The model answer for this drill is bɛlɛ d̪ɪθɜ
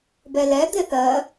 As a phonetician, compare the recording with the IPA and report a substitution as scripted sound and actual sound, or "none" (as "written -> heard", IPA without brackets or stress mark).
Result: none